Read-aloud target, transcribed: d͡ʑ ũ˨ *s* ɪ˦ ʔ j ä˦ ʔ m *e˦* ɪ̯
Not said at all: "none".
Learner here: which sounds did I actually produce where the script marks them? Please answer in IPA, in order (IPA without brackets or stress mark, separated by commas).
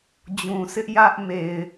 s, e˨